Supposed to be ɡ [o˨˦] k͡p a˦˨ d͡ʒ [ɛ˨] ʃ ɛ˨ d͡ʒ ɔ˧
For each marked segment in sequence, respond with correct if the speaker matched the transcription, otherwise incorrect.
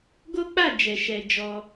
incorrect: o˦, correct

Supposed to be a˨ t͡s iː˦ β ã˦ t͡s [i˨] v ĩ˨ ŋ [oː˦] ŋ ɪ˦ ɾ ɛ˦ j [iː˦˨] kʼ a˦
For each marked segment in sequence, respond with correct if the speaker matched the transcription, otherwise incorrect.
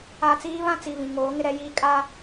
correct, incorrect: oː˨˦, incorrect: iː˦

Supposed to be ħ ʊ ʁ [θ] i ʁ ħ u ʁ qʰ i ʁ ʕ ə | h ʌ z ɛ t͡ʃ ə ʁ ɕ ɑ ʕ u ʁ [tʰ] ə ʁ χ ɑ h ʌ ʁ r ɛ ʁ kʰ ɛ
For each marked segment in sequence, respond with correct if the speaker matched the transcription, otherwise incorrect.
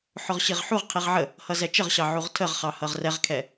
incorrect: ɕ, correct

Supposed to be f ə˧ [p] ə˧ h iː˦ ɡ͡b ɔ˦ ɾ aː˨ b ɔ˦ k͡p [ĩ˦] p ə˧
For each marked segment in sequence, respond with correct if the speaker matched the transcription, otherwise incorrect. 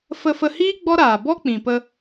incorrect: f, incorrect: ĩ˨

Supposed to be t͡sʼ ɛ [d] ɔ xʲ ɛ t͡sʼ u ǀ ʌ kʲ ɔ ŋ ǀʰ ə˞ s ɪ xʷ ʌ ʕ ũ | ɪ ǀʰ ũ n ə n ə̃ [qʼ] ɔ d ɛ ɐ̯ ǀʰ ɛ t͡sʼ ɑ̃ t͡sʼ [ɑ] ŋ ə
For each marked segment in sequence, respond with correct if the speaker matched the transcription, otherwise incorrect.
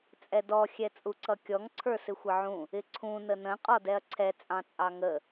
correct, correct, correct

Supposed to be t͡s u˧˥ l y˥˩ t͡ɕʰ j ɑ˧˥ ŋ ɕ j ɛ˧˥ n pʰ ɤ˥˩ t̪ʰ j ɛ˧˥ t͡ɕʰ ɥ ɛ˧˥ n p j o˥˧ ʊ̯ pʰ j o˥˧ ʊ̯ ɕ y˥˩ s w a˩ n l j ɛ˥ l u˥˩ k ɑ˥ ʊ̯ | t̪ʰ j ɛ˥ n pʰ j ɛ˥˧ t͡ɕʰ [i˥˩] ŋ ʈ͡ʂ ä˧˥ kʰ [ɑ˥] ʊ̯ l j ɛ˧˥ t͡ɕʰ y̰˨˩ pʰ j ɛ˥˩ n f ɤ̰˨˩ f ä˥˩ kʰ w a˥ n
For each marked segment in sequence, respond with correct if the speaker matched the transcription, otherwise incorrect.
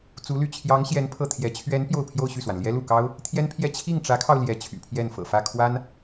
correct, incorrect: ɑ˧

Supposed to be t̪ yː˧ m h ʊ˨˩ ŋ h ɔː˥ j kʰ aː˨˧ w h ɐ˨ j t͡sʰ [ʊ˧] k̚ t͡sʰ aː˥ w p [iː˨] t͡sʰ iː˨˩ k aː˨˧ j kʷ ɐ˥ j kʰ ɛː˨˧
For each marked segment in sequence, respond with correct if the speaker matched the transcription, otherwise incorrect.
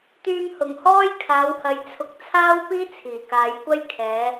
incorrect: ʊ˨˥, incorrect: iː˥

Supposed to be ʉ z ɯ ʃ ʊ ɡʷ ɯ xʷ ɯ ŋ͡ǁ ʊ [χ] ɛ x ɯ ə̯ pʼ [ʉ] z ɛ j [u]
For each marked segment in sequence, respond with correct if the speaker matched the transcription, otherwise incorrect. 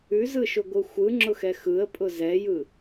incorrect: x, incorrect: ʊ, incorrect: ɯ

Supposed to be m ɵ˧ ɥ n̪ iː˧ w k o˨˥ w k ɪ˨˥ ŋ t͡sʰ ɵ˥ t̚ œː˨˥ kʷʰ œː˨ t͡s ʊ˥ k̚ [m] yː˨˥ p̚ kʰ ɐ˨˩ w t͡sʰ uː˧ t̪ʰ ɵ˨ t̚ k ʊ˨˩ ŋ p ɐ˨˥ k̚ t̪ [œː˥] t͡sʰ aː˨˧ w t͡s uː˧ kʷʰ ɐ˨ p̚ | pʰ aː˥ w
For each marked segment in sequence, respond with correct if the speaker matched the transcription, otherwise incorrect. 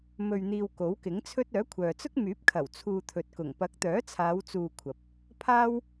correct, incorrect: œː˨˥

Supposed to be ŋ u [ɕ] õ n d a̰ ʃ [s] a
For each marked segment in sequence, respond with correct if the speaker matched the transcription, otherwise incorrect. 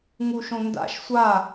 incorrect: ʃ, incorrect: sʷ

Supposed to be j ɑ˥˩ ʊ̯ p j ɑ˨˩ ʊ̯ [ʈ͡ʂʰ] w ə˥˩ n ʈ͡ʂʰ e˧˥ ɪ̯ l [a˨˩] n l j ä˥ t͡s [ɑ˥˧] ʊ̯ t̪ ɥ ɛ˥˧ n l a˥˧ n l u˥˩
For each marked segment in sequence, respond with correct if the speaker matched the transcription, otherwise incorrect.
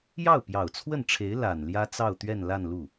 incorrect: t͡sʰ, correct, correct

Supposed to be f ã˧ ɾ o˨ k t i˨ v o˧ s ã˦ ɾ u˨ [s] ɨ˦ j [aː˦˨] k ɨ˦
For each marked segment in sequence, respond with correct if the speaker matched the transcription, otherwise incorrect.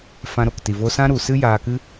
correct, incorrect: aː˧

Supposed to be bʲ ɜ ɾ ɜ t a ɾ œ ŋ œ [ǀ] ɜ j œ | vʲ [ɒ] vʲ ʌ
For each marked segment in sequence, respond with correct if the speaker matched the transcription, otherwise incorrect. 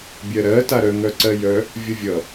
correct, incorrect: ʌ

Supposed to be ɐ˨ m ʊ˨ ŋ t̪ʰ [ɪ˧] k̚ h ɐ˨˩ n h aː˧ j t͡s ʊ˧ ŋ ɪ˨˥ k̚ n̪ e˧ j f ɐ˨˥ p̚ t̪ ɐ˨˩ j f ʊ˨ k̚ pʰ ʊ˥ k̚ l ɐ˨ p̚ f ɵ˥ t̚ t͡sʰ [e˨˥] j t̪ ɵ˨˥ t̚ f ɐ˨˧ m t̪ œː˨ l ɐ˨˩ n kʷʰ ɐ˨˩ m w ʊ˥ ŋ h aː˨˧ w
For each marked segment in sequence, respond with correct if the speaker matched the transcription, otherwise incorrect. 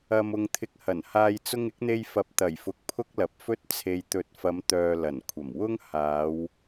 correct, incorrect: e˨

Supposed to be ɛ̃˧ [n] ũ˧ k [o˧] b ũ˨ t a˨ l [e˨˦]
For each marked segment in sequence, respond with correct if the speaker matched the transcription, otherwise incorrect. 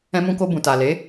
incorrect: m, correct, correct

